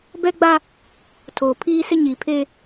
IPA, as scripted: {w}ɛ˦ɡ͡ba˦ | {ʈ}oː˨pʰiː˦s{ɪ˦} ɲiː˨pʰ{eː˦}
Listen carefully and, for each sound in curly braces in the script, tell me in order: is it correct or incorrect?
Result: incorrect, incorrect, correct, correct

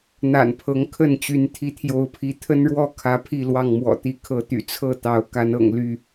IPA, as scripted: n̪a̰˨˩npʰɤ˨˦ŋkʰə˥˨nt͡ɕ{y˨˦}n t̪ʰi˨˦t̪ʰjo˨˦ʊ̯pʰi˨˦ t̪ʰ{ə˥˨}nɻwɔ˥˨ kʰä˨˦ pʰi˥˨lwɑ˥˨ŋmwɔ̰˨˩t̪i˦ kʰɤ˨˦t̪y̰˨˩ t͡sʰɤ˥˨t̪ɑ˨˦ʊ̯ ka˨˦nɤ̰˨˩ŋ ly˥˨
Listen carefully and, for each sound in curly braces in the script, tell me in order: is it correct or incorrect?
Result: correct, incorrect

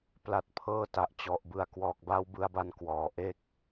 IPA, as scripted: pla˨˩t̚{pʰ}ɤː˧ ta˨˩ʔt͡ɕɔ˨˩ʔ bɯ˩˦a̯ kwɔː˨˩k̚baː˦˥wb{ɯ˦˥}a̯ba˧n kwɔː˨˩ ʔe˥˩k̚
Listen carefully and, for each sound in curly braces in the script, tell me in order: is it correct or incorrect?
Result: correct, incorrect

